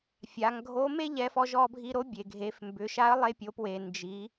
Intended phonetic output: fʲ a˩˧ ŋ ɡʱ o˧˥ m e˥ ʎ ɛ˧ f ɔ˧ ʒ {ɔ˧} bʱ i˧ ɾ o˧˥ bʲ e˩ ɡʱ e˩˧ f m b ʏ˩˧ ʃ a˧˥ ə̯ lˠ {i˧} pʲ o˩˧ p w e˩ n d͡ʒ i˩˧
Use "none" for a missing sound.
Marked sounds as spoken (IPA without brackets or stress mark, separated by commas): ɔ˧, e˧